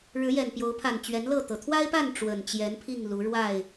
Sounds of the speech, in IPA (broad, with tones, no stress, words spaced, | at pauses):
ɻɻ̩˨˦jɛ˨˩n pjo˨˦ʊ̯pʰa˨˩nt͡ɕɥɛ˨˦n lɤ˥˨t̪ɤ˩ t̪ʰwa˦ɪ̯pa˥˨n ʈ͡ʂwə˨˩nt͡ɕjɛ˨˦npʰi˥˨ŋ lu˨˦ɻwa˥˨ɪ̯